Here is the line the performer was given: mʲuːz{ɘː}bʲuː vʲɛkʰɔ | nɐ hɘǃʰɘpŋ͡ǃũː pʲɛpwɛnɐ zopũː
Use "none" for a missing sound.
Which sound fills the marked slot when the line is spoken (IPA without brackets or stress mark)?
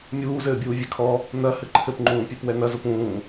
ɘː